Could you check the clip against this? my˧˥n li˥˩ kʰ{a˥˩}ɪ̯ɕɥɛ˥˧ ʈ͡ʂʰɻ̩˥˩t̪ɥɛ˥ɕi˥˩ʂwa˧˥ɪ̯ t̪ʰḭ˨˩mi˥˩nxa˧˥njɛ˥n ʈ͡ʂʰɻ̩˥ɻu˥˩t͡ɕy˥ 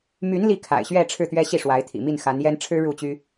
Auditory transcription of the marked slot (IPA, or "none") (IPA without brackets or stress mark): a̰˨˩